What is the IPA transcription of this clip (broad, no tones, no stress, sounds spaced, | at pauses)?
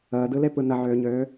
əː d ɯ l e p ɯ n ə ʕ øː ɲ øː